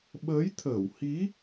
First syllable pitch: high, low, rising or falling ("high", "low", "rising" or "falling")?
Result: rising